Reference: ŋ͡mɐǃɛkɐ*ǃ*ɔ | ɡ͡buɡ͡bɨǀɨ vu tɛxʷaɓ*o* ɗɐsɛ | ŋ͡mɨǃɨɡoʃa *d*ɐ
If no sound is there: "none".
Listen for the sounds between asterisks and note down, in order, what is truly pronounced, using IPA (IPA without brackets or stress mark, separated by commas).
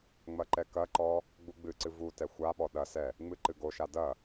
ǃ, ɔ, d